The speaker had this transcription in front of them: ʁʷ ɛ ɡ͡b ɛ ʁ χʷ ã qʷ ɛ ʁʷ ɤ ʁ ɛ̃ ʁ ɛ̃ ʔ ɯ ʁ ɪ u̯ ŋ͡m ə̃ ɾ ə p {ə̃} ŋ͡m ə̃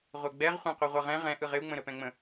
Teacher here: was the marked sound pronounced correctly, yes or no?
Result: no